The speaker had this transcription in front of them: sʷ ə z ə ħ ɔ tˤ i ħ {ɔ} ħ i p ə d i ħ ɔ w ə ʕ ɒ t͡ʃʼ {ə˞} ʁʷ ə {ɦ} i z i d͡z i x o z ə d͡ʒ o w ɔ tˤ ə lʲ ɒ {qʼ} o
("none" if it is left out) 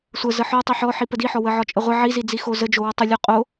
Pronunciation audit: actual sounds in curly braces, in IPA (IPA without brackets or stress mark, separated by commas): ɔ, ə, ʕ, qʼ